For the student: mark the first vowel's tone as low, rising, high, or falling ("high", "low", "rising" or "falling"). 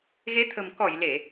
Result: rising